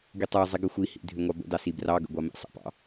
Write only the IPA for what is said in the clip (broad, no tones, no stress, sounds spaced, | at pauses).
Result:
ɡ i tˤ ə˞ zˤ i ɡ ə xʷ i h ḭ dʱ ʏ ŋʷ ɑ b ə̰ d ɑ s i b r ɑ ɡ ə̰ ɡʷ ɑ m ḭ sˤ ə̰ p ɑ̰